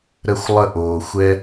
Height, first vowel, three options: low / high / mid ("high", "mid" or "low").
mid